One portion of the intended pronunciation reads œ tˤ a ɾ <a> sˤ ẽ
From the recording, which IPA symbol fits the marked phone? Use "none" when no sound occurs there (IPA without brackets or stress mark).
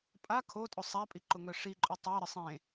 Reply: ə